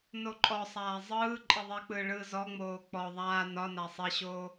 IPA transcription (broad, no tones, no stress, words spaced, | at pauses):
noǃʼɔsˤaː zˤɯː ǃʼiðˤik͡pɯː ɭɯːzɔŋ͡moː k͡pɔ ðˤaː nɒna sˤiɕoː